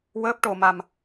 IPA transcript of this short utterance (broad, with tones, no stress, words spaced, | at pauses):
wəː˦˥p̚ʈo˧ma˧m